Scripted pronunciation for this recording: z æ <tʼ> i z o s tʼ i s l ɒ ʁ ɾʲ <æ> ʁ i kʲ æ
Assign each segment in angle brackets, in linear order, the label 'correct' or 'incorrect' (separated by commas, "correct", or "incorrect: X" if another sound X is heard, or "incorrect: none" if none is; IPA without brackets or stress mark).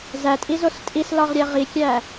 correct, correct